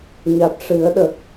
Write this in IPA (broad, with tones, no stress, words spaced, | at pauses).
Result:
ɲa˨˩t̚ʂɨ˨˩˦ə̯ɗə˨˩k̚